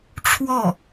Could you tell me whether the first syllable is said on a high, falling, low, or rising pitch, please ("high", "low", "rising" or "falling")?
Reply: falling